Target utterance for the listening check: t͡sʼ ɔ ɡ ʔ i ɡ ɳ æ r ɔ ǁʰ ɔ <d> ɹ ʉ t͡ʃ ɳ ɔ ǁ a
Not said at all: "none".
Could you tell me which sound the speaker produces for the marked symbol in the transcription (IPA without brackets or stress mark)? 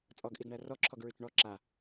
ɡ